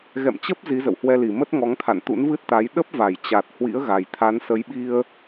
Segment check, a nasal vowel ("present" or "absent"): absent